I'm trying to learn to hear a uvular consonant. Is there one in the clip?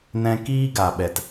no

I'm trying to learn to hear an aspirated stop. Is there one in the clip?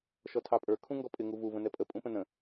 yes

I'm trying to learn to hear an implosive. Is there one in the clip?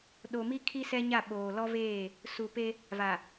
yes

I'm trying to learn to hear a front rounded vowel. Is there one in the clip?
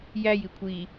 no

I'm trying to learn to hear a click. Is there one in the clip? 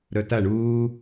no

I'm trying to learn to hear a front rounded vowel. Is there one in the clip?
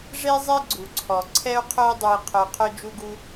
yes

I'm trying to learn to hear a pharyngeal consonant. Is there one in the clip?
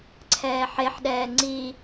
yes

